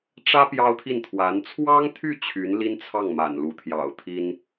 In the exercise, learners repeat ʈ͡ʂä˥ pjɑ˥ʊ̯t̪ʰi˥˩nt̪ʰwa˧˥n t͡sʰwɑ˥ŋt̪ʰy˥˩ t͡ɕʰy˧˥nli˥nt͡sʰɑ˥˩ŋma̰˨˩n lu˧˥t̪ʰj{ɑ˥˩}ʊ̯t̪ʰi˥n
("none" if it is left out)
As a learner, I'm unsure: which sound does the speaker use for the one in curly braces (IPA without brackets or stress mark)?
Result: ɑ̰˨˩